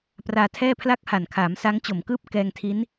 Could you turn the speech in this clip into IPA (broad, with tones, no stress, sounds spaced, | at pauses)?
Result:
p r aː˧ tʰ ɛː˥˩ pʰ l a˥˩ k̚ h a˨˩ n kʰ aː˩˦ m s a˦˥ ŋ t͡ɕ o˨˩ m k ɯː˥˩ p̚ k ɛː˧ ŋ tʰ i˦˥ n